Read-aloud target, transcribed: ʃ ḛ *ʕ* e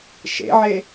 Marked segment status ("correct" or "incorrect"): correct